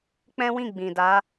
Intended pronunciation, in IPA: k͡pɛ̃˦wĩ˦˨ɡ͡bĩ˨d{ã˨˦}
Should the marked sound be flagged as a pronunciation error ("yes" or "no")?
yes